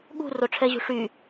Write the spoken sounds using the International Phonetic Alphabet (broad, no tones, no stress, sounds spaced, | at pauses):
ɠ ṳ r o ʈ͡ʂʰ ɛ ʑ ṳ ʂ y